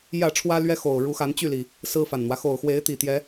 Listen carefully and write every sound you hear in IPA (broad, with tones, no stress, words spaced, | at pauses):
jä˥˨ʈ͡ʂʰwä˦lɥɛ˦ xo˨˩ʊ̯ɻu˨˦xa˨˦n t͡ɕy˥˨li˨˩ | sɹ̩˦fa˨˩nn̪wä˦ xo˨˩ʊ̯xwe˨˦ɪ̯t̪i˨˩t̪jɛ˨˦